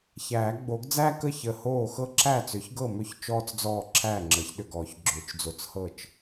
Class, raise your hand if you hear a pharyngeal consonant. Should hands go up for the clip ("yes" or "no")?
no